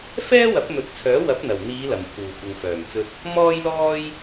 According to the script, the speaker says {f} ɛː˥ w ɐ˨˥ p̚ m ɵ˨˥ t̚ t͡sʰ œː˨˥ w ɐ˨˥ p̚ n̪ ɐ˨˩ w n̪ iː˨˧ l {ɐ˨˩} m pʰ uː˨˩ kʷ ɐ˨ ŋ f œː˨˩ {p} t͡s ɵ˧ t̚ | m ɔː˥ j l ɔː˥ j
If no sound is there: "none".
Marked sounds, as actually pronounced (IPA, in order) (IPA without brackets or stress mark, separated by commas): f, ɐ˨˩, m